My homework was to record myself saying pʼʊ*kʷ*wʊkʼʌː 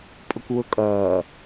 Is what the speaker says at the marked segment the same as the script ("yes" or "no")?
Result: yes